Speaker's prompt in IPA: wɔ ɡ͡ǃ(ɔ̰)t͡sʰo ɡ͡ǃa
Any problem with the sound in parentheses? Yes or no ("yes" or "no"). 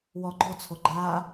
yes